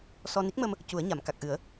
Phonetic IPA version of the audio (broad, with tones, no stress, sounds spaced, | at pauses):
s ɔ˧ n i˦˥ k̚ m ə˧ m | c u˨˩˦ ə̯ ɲ a˨˩˨ m k a˨˩ k̚ ʔ ɨ˨˩˦ ə̯